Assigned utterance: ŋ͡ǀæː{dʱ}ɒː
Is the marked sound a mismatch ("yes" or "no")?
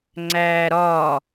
yes